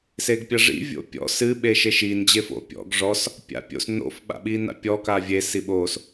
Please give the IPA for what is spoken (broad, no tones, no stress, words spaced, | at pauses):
seɡpʲɐʐḭ vʲo̰pʲɔ̰ sɨ ɓeʃeʃin d͡ʑefo̰ pʲɔ̰ɡ ʐɔs | pʲa̰pʲo̰s no̰f ɓa̰ɓina̰pʲɔ kavʲe siɓos